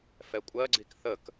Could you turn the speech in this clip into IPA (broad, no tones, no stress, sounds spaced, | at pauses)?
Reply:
f ɛ kʷʼ ɜ ɡ͡ǀ i k θ ə k